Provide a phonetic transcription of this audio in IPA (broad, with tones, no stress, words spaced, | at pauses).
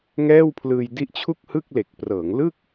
ŋɛː˥˩wpʰlɯː˧j di˦˥ʔt͡ɕʰu˥˩k̚hɯ˥˩k̚ le˨˩k̚prɤː˩˦ŋlɯ˥˩k̚